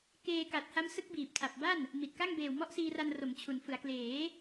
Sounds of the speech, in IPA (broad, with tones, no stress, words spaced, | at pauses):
keː˧ka˨˩t̚ha˦˥m sɯ˦˥k̚biː˨˩p̚tʰa˨˩p̚ba˥˩n | mi˨˩t̚ka˥˩ŋ beː˨˩wmɔ˦˥ʔsiː˧ra˧n ro˩˦mt͡ɕʰu˩˦nfɯ˩˦a̯ kleː˩˦